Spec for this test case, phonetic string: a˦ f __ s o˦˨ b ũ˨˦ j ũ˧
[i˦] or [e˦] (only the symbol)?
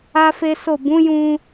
e˦